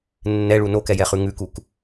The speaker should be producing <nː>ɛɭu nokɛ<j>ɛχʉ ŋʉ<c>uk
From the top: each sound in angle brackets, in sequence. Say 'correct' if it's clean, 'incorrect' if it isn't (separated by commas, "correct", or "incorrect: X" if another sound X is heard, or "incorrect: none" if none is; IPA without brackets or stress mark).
correct, correct, incorrect: k